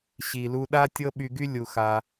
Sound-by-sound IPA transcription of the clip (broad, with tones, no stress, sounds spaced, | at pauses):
ɕ i˩ l u˧ ɗ a˥ tʲ ɤ˥ ɓ y˧ ɡ y˥ lʲ u˩ x a˩